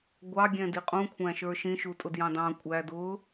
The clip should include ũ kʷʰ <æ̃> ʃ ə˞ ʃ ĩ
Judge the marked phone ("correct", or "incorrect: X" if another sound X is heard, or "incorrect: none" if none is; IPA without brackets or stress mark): correct